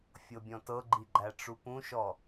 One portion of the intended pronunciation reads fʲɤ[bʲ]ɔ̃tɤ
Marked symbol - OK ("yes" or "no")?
yes